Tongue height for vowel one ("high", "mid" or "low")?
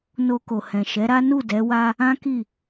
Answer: mid